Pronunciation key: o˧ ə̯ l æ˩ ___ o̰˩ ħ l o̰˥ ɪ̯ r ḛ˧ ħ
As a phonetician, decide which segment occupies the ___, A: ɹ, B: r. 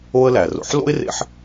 B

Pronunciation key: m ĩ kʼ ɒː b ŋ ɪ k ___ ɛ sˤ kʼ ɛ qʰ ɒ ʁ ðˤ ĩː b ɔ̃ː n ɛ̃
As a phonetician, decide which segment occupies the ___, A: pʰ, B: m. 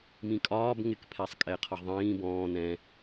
A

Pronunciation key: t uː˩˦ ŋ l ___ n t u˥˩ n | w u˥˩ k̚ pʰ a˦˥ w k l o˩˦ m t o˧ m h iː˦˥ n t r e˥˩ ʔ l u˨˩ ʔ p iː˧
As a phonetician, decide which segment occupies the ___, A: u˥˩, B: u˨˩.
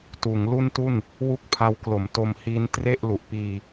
A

